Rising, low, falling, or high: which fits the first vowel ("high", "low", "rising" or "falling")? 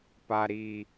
high